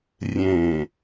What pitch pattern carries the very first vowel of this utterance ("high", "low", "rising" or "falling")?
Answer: low